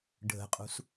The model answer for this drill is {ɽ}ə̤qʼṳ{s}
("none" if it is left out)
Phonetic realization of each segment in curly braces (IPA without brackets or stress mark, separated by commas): ɖʱ, s